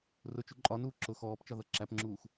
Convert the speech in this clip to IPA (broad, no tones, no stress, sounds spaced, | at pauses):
r ʊ t͡ʃ u ǃʼ ɒ n uː ǁ ʊ x ɔː p t͡ʃ ɒ ð ʌ ǁ æ p ŋ͡ǁ uː x